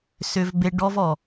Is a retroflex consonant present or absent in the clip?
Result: present